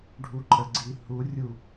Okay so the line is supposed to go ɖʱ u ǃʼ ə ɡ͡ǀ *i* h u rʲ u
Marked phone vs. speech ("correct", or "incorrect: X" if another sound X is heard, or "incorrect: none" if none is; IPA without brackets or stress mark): correct